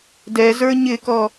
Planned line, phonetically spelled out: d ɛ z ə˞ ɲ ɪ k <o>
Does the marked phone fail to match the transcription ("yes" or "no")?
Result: yes